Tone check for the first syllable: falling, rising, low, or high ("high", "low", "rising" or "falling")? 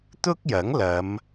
high